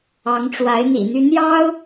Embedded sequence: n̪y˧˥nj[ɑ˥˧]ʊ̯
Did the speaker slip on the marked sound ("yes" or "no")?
yes